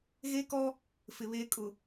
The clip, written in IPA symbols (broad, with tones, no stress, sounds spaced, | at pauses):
ɣ e˦ k ɔ˦ | f ɪ˨ β eː˦ kʼ ʊ˨